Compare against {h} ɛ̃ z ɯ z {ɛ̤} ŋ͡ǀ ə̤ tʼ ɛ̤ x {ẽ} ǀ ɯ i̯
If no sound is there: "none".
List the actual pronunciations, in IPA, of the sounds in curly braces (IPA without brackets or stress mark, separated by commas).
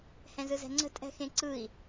h, ɛ̤, ẽ